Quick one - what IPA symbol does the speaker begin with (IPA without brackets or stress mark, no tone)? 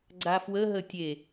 ɡ͡ǀ